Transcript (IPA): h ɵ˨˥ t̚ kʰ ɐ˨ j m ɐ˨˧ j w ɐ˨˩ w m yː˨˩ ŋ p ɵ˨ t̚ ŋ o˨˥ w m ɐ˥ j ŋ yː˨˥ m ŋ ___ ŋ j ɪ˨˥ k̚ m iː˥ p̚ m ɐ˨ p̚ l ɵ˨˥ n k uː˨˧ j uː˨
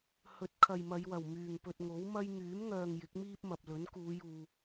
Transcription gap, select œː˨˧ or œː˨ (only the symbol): œː˨